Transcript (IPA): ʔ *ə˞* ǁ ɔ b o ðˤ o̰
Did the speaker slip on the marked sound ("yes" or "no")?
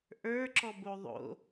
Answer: no